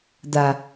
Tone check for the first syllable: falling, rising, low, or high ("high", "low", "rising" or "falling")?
low